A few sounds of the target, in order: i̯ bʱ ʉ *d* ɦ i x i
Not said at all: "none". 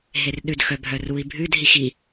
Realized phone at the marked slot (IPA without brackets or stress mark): d